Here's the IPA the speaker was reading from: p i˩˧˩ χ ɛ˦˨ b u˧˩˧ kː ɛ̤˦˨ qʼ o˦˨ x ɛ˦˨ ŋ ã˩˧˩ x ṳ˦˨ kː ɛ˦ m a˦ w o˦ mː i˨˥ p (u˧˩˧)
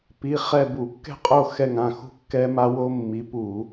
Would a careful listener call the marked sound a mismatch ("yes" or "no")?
no